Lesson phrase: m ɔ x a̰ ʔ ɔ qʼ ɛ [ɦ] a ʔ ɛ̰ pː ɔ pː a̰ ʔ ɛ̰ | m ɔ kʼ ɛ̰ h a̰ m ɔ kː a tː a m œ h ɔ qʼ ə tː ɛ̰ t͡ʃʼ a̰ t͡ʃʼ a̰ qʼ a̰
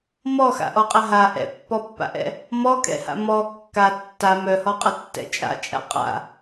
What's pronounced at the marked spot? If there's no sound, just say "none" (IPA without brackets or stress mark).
ɦ